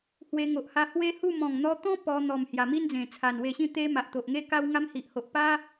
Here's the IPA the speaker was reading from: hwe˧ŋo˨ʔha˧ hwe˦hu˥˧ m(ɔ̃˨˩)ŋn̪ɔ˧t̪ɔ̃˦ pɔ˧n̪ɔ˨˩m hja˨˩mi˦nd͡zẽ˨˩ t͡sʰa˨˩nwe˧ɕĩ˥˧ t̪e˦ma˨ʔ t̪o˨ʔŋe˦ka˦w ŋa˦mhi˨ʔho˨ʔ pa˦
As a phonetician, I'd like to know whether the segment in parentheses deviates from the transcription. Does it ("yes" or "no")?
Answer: no